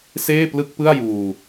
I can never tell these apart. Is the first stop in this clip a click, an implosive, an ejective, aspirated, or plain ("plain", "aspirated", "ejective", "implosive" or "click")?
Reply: plain